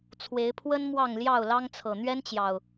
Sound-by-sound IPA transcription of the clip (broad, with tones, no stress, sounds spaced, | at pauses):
t͡sʰ w e˨˦ ɪ̯ pʰ w ə˦ n m w ɑ˥˨ ŋ l j ɑ˥˨ ʊ̯ l ɑ˦ ŋ t͡sʰ ɤ˨˩ n̪ ɥ ɛ˦ n t͡ɕ j ɑ˨˩ ʊ̯